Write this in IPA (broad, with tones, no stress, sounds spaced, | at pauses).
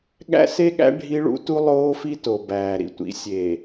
ɠ æ̰˦ s e˦ ɠ æ̰˦ ɖʱ i˦ ɭ ṵ˦ t u˦ lˠ oː˦ f i˦ t o˨ b æː˨ ɾ ḭ˦ tʷ ḭ˨˦ sʲ eː˨